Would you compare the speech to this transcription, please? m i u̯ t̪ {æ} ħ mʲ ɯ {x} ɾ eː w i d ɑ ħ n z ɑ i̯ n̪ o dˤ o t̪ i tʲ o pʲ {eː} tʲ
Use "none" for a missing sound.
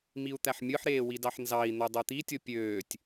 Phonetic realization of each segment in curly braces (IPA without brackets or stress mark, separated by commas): æ, ħ, øː